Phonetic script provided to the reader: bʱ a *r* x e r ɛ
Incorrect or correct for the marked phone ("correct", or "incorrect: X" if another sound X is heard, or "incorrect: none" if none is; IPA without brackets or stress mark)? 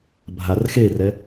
correct